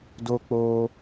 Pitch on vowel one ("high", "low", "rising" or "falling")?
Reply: high